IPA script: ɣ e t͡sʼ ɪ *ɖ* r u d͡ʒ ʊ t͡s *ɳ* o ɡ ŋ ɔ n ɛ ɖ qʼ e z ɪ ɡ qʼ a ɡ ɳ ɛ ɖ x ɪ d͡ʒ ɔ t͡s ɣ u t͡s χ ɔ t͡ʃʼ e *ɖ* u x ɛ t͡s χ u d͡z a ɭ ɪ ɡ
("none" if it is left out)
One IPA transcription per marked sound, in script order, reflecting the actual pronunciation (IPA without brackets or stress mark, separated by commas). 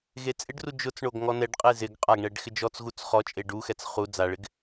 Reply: ɖ, ɳ, ɖ